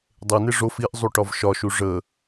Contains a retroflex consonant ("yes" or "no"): yes